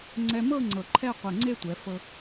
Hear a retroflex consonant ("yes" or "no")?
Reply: no